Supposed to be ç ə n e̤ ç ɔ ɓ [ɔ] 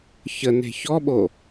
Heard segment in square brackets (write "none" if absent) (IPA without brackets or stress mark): o